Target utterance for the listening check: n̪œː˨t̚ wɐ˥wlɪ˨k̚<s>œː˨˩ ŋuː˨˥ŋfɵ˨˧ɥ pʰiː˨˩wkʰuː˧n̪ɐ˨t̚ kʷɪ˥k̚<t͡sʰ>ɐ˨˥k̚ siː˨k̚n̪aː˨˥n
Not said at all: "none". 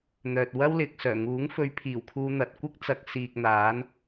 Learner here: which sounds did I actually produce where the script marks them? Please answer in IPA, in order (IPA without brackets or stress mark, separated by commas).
s, t͡s